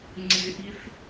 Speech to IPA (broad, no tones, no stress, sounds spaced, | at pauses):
ŋ͡ǀ ɪ ʔ i θ